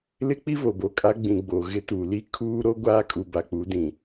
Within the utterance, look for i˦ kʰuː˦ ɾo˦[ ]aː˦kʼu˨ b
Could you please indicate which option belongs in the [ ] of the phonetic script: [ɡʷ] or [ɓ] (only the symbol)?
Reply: ɡʷ